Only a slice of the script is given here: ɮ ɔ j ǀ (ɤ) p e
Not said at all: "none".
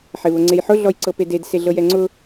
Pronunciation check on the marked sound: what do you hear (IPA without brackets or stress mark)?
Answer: ɤ